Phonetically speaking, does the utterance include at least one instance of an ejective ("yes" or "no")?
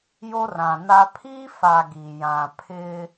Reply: no